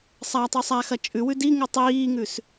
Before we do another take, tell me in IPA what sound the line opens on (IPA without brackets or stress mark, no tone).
sˤ